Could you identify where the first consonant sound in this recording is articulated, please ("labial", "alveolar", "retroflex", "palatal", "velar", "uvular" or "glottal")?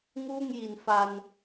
velar